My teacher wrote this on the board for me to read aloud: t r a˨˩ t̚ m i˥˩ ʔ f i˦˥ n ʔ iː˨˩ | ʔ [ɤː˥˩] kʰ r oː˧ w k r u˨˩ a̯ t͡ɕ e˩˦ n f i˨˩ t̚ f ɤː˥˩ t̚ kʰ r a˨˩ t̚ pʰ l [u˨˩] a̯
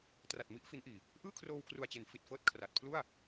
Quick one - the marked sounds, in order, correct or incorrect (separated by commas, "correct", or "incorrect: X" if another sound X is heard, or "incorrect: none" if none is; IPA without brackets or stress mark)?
incorrect: ɯː˥˩, incorrect: u˥˩